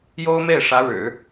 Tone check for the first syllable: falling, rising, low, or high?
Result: high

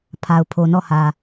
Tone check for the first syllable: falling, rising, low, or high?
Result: low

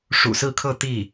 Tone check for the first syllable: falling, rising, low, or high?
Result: low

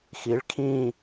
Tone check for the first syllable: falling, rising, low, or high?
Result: rising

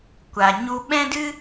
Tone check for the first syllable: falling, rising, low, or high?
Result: low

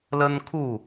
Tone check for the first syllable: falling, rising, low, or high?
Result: high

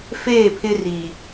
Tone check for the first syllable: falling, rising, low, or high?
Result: falling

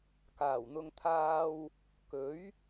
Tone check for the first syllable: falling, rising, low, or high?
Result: low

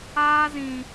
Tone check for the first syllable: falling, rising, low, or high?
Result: high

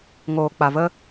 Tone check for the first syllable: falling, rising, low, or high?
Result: low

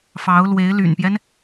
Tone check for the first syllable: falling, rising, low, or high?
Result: rising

